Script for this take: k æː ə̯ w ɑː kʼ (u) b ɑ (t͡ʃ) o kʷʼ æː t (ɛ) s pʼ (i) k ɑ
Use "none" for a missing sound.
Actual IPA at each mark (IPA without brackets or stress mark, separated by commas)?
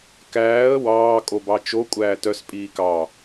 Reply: o, t͡ʃ, œ, iː